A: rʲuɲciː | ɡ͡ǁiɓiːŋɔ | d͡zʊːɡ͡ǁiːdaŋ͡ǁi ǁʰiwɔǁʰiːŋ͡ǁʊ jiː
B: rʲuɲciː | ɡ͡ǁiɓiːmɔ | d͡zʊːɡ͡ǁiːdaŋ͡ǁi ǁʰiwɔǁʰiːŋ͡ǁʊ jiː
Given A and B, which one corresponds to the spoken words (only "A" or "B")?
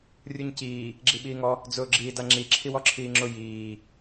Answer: A